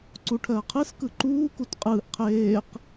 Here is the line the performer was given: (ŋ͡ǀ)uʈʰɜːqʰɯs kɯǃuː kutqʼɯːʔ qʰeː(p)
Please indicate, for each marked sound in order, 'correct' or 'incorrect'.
incorrect: ǀ, incorrect: q

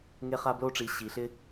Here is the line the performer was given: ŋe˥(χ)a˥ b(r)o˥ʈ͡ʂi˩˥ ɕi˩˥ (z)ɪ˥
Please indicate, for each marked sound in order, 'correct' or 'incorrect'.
correct, incorrect: l, incorrect: ɬ

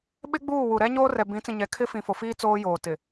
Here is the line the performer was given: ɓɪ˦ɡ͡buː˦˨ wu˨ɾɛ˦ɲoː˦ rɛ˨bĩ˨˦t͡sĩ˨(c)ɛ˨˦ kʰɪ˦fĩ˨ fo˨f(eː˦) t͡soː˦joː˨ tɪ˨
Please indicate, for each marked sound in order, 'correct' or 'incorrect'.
incorrect: ɲ, incorrect: iː˦

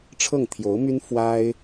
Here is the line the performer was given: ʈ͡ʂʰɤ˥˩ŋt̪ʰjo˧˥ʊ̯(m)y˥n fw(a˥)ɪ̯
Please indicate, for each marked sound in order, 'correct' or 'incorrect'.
correct, correct

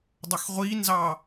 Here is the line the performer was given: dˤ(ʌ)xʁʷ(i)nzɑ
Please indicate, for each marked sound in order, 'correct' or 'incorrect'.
correct, correct

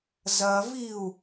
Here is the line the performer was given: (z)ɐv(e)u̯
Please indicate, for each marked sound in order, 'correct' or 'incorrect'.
correct, incorrect: i

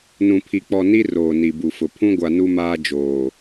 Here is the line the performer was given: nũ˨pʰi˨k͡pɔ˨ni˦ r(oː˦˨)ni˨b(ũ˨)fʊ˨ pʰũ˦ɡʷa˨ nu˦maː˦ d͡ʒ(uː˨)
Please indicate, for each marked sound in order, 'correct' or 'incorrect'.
incorrect: oː˨, incorrect: u˨, incorrect: oː˨

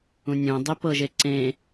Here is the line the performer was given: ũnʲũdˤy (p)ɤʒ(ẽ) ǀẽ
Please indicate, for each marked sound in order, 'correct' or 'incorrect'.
correct, incorrect: e

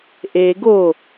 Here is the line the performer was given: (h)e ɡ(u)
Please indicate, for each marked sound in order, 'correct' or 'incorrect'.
incorrect: ʔ, incorrect: o

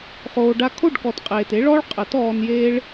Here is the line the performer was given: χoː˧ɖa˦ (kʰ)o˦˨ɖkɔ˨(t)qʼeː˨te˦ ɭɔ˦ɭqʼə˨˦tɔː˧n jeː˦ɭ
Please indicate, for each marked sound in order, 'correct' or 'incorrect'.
correct, correct

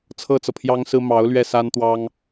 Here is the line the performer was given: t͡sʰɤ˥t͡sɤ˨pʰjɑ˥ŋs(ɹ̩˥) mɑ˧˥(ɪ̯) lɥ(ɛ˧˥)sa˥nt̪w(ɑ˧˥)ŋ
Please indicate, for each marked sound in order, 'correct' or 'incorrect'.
correct, incorrect: ʊ̯, incorrect: ɛ˥˩, incorrect: ɑ˥

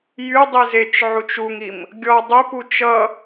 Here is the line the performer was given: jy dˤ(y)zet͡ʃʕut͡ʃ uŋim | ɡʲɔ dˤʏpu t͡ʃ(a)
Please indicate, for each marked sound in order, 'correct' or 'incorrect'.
incorrect: i, incorrect: ʌ

